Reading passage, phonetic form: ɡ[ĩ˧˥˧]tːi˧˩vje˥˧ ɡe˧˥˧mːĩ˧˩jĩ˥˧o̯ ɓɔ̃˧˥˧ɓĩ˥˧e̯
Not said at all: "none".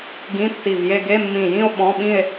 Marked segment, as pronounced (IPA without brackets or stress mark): ĩ˧˥˧